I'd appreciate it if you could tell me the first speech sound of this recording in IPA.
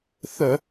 θ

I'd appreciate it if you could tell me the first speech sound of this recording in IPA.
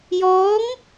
j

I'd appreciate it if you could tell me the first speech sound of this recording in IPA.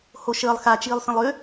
h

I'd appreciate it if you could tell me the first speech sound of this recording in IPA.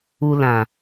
u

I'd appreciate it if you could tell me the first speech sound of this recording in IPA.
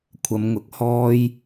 kʷʰ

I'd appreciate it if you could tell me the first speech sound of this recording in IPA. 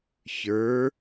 ç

